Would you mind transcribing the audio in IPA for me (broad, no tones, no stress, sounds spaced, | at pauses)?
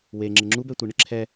w e ŋ͡ǁ ɪ ŋ͡ǁ u b ɛ tʷ i ɳ ɪ ǁʰ ɛ